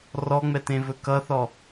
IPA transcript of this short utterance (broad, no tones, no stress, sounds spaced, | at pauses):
r ɔ ŋ͡m ɛ t ẽ v ɵ k ʌ θ ɔ